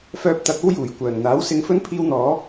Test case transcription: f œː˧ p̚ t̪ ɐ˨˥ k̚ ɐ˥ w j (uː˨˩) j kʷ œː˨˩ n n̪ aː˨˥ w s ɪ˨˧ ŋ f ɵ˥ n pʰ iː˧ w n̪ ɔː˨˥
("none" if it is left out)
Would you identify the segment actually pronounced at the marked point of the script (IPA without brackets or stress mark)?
uː˨˩